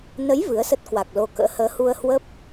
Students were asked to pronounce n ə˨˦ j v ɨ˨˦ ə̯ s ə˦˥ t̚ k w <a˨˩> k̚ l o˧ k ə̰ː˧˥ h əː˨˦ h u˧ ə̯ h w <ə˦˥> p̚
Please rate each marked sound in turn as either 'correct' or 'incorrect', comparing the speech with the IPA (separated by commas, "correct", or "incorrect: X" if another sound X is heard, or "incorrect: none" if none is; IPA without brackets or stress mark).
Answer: correct, correct